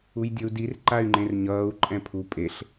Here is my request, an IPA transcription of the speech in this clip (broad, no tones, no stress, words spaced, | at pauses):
ujdʲʌu̯dir ǃay̯ŋ͡ǃẽrɲʌːu̯ ǃʼɛ̃pʰu pʼeɬ